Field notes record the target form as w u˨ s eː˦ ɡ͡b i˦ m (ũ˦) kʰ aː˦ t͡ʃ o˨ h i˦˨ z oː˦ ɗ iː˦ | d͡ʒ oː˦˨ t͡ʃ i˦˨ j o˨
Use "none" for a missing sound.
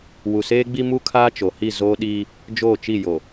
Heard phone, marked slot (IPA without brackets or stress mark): u˦